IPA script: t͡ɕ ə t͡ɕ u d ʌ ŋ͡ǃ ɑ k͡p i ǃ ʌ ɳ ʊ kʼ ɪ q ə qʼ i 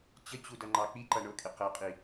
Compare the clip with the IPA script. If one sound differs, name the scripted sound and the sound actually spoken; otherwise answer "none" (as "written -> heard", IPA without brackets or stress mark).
none